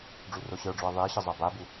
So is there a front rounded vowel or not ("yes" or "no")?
no